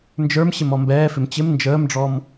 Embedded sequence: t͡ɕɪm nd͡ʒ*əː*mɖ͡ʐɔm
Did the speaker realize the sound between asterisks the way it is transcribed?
yes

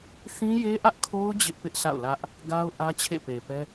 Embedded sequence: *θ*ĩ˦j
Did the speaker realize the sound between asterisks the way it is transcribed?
yes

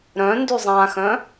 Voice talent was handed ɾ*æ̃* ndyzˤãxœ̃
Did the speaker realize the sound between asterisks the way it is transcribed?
no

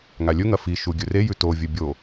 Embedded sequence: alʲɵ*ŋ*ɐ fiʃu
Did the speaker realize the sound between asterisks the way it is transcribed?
yes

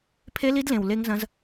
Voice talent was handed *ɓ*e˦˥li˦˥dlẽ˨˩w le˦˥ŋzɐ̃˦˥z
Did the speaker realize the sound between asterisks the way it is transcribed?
no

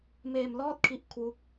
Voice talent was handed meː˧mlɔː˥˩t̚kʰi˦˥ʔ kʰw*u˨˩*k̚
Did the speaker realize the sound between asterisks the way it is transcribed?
no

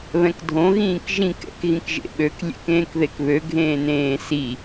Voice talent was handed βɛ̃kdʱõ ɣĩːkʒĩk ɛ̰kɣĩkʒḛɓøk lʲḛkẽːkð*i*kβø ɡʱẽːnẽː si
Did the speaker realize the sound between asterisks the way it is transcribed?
no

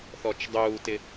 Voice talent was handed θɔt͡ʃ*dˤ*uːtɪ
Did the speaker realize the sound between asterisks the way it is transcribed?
yes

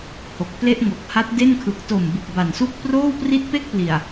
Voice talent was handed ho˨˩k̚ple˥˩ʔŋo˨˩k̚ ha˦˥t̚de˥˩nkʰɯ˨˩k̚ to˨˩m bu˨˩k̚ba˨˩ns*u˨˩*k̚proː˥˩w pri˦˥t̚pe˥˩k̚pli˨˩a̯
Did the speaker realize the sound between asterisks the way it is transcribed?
no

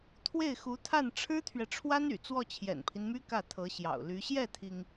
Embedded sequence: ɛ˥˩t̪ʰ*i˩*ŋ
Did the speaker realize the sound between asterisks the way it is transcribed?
yes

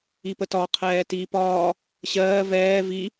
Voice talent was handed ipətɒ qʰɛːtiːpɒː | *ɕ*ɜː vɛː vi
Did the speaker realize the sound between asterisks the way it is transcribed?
yes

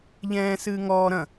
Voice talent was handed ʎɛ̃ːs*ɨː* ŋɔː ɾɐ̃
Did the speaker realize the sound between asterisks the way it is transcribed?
yes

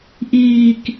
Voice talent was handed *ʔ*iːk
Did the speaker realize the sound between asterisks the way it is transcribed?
yes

